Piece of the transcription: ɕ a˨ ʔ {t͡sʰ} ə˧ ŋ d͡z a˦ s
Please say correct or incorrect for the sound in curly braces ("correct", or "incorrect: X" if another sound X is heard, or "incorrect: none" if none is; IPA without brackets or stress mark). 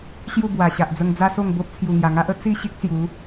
incorrect: d͡z